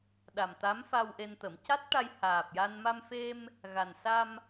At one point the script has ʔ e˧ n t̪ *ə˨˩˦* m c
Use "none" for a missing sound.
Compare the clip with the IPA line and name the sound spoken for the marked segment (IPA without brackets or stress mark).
ə˨˩˦